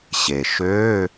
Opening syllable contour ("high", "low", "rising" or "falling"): low